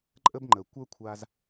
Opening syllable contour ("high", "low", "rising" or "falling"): high